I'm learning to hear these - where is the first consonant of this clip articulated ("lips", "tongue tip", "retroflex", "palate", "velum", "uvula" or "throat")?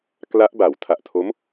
velum